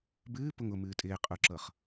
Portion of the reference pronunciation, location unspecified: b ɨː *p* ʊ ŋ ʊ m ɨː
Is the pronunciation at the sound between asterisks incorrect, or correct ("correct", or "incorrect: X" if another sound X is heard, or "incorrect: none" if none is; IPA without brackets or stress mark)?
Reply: correct